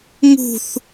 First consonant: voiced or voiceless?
voiced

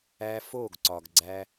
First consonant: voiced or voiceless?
voiceless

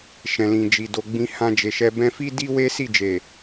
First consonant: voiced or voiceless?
voiceless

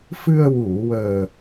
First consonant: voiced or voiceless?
voiceless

